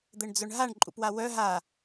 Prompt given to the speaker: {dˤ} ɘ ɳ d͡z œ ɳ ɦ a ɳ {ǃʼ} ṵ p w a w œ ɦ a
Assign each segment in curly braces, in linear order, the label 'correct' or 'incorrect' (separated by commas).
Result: incorrect, correct